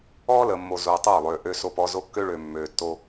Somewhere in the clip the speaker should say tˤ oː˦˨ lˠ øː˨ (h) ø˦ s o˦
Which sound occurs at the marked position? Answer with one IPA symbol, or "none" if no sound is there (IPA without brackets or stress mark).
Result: ʔ